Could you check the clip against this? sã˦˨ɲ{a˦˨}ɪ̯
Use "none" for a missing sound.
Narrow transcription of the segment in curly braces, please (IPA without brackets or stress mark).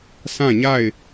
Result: a˦˨